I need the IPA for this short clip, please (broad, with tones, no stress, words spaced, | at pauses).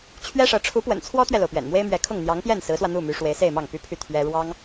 t͡ɕʰɥɛ˥ʂɤ˧˥ ʈ͡ʂʰu˧˥pwə̰˨˩n t͡sʰwɔ˥t̪ɥɛ˨lo˩ʊ̯ pɥɛ̰˨˩nmwe˥ɪ̯mɥɛ˧˥ kʰʊ˥˩ŋ n̪jɑ˧˥ŋpjɛ˥˩n sɹ̩˧˥swä˧ n̪u˥˩my˧˥ ʂwe˧˥ɪ̯se˥˧ɪ̯mɑ˥˩ŋ py˥pʰy˥˩ t̪ʰɥɛ˥ ɻwɑ˥ŋ